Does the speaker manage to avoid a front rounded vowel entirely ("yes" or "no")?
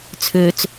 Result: no